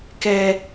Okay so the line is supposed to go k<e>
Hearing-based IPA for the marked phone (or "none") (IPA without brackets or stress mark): ɛ